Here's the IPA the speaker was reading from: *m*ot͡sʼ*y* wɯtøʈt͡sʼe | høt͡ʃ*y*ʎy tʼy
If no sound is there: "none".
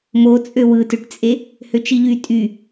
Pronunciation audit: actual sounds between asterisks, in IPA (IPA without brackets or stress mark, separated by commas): m, ø, i